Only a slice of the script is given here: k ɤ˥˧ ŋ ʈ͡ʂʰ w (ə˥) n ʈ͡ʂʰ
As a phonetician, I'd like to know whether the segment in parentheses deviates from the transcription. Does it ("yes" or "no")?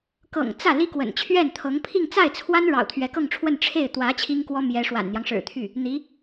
yes